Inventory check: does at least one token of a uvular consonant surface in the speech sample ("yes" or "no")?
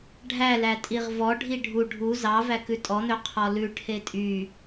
yes